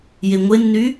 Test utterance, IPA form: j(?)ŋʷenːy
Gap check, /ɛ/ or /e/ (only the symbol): e